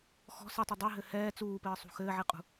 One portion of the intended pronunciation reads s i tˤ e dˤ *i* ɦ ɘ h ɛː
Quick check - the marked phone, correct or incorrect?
correct